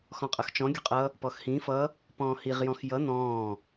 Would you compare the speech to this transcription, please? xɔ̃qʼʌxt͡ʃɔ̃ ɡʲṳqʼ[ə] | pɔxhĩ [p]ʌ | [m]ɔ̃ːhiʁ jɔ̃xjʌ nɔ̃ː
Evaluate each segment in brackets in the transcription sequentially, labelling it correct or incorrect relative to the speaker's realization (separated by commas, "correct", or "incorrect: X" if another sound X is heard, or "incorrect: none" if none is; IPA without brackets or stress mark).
incorrect: ʌ, incorrect: f, incorrect: p